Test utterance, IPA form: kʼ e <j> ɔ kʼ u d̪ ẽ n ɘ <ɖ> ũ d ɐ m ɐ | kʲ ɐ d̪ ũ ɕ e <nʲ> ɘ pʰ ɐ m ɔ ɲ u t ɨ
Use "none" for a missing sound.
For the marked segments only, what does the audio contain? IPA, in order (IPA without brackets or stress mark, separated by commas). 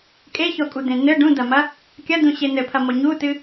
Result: ç, ɖ, n̪